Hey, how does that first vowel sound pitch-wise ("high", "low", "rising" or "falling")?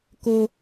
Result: high